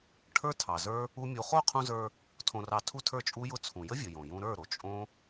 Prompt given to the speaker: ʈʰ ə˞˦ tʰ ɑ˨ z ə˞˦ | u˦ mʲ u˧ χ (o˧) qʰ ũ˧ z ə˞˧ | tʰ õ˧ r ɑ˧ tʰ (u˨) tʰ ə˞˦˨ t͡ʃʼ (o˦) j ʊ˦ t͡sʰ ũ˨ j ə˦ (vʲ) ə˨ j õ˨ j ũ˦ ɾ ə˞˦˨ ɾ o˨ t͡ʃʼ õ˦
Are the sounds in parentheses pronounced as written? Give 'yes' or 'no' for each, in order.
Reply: no, no, no, yes

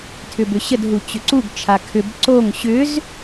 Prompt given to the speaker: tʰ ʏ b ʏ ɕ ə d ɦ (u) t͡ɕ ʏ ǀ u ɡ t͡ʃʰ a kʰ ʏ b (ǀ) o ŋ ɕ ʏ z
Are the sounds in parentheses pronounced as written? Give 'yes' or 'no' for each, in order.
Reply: yes, yes

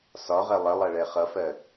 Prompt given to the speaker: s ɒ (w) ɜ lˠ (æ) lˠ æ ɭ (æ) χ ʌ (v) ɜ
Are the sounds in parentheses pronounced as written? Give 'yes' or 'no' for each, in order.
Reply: no, no, no, no

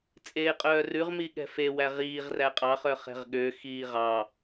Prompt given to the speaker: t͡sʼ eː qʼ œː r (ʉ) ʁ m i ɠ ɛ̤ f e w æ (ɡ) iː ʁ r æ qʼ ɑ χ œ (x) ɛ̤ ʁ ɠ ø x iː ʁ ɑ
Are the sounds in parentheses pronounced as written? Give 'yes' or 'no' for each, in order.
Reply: yes, no, no

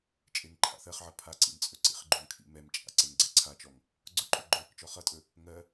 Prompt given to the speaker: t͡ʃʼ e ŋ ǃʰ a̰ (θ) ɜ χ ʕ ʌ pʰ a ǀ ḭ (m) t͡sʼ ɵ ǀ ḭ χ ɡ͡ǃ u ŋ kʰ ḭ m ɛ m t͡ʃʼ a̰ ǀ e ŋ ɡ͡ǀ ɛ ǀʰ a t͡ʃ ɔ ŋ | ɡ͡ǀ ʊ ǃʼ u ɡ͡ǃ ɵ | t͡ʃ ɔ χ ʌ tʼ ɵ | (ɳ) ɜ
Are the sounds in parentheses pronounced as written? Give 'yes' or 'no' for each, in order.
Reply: yes, yes, no

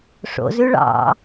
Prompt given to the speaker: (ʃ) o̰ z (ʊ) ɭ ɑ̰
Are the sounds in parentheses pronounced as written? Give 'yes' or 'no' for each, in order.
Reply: no, no

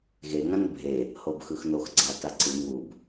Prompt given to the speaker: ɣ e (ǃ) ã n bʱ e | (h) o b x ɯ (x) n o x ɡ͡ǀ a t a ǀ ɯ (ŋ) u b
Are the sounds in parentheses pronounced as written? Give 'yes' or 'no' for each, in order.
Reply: no, yes, yes, yes

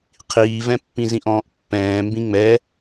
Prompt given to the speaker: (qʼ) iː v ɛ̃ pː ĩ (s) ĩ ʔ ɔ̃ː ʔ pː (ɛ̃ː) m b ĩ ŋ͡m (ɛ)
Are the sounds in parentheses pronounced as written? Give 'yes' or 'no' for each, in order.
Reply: no, no, yes, yes

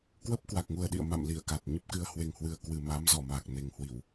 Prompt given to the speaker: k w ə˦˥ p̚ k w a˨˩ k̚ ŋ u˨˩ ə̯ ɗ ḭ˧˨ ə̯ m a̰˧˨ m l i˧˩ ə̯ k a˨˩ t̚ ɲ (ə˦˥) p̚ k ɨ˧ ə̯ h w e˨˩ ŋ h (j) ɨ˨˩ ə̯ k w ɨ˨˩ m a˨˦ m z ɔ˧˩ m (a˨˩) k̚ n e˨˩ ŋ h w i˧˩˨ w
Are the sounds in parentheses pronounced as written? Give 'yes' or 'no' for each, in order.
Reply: yes, no, yes

